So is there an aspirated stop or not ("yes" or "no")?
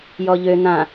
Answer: no